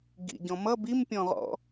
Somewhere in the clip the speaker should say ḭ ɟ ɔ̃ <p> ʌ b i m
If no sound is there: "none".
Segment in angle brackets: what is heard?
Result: m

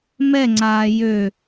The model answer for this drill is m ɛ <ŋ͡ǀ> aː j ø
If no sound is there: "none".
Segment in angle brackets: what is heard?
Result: ŋ͡ǀ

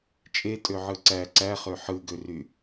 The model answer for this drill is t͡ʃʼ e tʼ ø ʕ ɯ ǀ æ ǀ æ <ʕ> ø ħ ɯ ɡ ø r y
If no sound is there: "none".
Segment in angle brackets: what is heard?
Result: χ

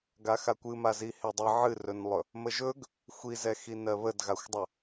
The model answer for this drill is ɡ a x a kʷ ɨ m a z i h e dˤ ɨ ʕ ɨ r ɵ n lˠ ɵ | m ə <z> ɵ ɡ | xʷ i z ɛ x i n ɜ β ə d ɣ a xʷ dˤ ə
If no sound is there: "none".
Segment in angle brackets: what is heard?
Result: ʒ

